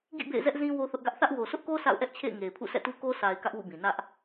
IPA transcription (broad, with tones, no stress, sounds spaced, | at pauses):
ɡ ḭ˦˨ b ḛ˦˨ ɪ̯ z ɛ˦ ʔ z ĩ˦ w o˦ θ ʊ˦ ʔ ɡ ä˦ ʔ θ ä˦ ʔ w o˨ sʰ ʊ˦ ʔ k o˦ s a̰˦˨ ʊ̯ ʔ ɛ˦ ʔ t͡ɕʰ ḛ˦˨ ɪ̯ ŋ e˨ ɪ̯ pʰ ṵ˦˨ s ɛ̰˦˨ t u˦ k o˦ s a˨ ɪ̯ k ä˦ ʔ w ṵ˦˨ b ĩ˨ n ä˦ ʔ